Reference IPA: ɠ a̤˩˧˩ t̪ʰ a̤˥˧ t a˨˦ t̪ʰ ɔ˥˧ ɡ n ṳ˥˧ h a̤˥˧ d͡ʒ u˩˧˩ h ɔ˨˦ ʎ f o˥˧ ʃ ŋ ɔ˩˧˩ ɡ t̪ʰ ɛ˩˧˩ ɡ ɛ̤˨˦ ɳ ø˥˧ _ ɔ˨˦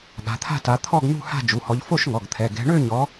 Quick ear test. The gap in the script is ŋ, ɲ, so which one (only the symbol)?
ɲ